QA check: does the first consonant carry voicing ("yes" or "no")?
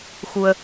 no